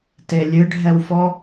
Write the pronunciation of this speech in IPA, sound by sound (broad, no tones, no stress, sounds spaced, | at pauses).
t e lʲ ɨ ɖʱ ɛ w f ɔ